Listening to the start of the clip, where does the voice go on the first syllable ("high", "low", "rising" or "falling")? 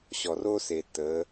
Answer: low